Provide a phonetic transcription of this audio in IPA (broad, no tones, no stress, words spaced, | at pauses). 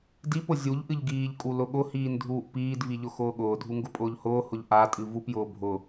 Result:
dipʊ zʲuʎ ʔɨʎɡiːʎkʼu lʊɠʊhiːn dʱuːʔpiːdvi ʎʊxʊːɠʊːdʱu ŋɡʊpʼʊːʎhʊːhʊʎ ʔatʼɨ vupjʊː bʱʊ